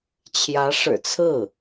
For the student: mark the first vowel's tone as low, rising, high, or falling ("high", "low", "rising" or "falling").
rising